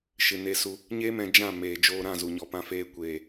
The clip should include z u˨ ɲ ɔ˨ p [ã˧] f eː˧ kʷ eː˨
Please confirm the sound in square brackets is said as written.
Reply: yes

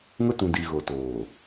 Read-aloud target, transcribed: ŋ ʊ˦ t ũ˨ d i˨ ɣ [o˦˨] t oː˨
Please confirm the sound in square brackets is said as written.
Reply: no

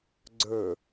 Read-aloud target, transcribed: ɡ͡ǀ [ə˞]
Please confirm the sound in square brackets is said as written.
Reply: yes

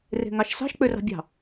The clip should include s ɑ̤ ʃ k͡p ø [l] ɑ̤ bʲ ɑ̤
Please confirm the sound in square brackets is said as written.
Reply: no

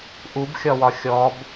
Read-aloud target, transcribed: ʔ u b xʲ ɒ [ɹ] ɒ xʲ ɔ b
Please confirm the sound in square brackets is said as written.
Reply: no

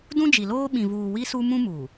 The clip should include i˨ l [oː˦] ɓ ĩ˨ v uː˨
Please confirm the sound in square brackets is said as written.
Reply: yes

